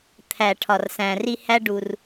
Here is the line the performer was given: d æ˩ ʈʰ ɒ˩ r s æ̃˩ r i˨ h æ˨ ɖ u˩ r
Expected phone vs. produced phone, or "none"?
d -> t̪ʰ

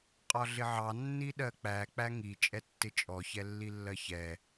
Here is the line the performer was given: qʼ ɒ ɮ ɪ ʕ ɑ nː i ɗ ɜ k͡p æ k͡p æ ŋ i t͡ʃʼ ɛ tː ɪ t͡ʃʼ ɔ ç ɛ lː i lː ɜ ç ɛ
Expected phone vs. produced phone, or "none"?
none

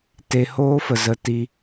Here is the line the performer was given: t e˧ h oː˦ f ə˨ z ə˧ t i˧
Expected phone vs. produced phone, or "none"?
none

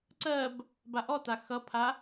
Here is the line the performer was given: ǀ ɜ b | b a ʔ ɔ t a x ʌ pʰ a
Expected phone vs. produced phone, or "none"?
none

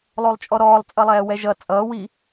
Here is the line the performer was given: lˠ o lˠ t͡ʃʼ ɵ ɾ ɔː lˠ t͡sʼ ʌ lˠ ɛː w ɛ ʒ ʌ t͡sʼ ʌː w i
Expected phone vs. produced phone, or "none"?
ɵ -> ɔ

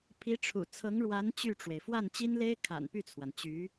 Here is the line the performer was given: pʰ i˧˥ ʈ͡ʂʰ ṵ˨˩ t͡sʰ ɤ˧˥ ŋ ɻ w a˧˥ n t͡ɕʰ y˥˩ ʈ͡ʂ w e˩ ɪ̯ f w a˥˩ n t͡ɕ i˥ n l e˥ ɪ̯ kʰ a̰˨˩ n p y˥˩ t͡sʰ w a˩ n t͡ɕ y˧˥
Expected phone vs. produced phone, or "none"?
t͡ɕʰ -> t͡ɕ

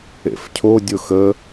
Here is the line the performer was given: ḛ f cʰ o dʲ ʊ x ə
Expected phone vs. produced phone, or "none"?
none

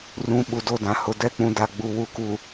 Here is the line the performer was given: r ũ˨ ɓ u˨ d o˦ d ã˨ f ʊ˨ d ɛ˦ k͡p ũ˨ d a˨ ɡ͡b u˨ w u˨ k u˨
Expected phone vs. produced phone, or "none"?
f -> h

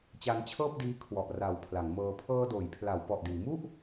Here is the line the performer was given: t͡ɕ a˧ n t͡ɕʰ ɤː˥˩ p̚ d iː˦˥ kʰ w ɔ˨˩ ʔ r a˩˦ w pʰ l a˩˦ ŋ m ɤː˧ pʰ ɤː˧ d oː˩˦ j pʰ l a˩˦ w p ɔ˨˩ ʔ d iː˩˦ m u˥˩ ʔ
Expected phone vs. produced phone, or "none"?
none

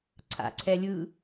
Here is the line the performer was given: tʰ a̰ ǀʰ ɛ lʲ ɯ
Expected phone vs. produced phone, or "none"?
tʰ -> ǀʰ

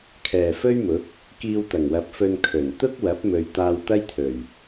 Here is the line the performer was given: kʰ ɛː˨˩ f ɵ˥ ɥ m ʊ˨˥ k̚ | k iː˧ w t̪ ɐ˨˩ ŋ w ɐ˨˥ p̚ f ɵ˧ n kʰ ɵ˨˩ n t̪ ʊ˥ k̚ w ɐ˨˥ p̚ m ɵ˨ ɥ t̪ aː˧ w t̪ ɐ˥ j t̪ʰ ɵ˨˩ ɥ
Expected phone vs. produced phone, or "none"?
none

